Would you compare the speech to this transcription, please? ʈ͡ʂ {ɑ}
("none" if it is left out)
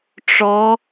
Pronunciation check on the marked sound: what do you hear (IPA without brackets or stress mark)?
ɔ